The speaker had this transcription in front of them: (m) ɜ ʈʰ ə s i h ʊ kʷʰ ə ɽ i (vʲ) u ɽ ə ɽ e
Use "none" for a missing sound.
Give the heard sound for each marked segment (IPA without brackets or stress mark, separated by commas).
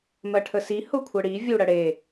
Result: m, vʲ